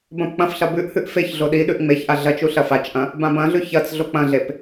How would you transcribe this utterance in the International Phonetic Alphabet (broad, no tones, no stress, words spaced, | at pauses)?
bɐ̃pk͡pɐ̃fɬɐ bʉʔhʉʔ feç ɮoɗiɗʉʔ ŋ͡meçʔa ɮɐt͡ʃu ɬɐfat͡ʃʔɐ̃ | bãbɐ̃ɮʉ çɐt͡s ɮok͡pɐ̃ɮep